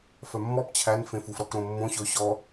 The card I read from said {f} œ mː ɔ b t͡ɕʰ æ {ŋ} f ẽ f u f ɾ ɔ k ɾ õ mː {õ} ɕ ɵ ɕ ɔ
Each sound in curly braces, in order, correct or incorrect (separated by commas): correct, incorrect, correct